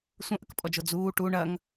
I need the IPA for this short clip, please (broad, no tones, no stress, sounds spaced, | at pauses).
sʷ ɐ̃ ʔ ə k pʼ ɔ d͡ʒ o d͡z uː ʈ u ɳ ɐ ŋ